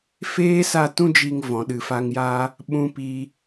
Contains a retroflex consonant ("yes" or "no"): no